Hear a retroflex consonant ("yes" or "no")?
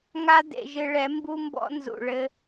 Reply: yes